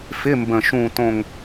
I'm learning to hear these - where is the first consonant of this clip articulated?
lips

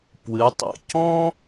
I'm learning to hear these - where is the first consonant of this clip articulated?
lips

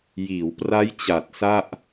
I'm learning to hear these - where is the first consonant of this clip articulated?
palate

